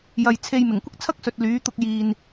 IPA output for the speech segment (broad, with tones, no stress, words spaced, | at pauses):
jɐ˨jt͡sʰe˧j mɪ˨˩ŋkʷɪ˥k̚t͡sʰɐ˥k̚sɵ˨t̚ lyː˨˥t̪ʊ˧k̚ jiː˨n